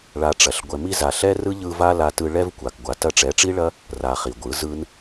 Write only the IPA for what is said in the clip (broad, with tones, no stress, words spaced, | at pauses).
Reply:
ɭa˧ʈ͡ʂɐ˨ɬ ɡʷɛ˨mi˧za˨ ɬɛ˦rɯ˦ʎɯ˧ va˦la˧tɯ˧ ɭɛ˦v kʷa˨kɡʷa˨ tɐ˧ʈ͡ʂɛ˨˦ʈ͡ʂi˦ɭɐ˦ | ra˨ χi˨ɡʷɯ˨˦ zɯ˦n